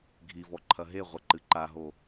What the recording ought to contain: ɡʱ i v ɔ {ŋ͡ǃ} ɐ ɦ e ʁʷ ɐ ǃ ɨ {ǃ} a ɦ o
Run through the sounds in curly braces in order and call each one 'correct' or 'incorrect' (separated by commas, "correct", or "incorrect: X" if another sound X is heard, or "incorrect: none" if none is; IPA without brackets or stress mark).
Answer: incorrect: ǃʰ, correct